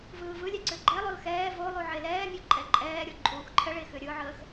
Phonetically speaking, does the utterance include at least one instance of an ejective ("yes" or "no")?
yes